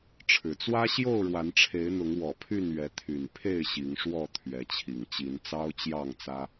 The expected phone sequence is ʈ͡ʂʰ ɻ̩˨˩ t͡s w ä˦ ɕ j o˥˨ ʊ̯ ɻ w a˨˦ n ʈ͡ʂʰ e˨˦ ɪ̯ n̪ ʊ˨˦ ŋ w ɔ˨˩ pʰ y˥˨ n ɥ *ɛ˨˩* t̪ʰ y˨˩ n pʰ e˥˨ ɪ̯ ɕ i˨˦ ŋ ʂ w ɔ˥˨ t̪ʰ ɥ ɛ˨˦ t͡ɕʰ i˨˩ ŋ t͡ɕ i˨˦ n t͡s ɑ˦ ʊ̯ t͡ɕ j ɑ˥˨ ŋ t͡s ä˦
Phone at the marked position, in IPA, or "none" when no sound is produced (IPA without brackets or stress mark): ɛ˨˦